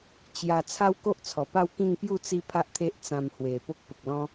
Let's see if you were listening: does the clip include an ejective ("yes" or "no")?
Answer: no